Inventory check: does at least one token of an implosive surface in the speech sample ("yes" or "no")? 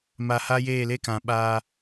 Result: yes